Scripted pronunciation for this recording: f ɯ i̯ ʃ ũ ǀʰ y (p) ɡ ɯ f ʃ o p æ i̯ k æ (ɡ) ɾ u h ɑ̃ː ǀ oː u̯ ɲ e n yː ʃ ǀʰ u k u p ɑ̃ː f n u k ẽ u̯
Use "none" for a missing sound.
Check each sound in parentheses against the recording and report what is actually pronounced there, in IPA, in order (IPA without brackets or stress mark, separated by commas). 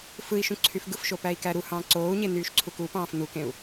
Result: f, none